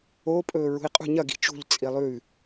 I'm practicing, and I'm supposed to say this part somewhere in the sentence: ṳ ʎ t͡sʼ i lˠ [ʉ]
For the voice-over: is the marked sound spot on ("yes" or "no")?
yes